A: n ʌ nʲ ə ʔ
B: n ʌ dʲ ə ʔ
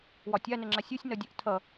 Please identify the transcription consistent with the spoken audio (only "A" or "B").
B